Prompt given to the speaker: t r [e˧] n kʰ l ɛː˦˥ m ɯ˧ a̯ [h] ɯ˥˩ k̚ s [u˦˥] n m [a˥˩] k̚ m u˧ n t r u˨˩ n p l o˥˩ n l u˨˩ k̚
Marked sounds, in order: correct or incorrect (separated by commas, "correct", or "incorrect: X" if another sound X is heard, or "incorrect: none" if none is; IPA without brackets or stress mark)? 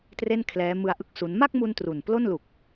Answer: incorrect: e˥˩, incorrect: ʔ, correct, correct